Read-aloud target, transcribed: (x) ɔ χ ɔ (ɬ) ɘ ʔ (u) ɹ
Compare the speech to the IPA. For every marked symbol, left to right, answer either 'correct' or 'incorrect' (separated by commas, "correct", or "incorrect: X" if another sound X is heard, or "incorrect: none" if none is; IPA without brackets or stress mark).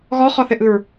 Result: incorrect: ɣ, incorrect: θ, incorrect: ɯ